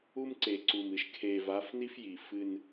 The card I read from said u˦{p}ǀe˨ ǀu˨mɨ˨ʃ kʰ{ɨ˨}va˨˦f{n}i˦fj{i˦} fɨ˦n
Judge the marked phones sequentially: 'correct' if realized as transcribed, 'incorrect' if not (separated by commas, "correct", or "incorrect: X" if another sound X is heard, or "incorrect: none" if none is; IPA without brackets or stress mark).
incorrect: m, incorrect: e˨, correct, incorrect: i˨